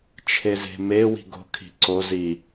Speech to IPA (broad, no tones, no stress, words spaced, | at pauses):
t͡ʃʰeze̤me wi̤ɡo̤ kʰi̤ǀo zi